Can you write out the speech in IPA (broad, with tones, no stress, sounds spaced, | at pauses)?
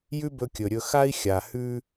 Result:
j ʉ˥ b ɵ˧ kʲ ɵ˩ ɾʲ ɵ˧ x a˥ i̯ xʲ a˩ h ʉ˥